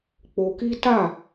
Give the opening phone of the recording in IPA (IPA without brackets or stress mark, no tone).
k͡p